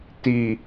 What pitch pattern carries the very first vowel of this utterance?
low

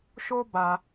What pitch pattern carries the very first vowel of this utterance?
high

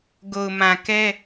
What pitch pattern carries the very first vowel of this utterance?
low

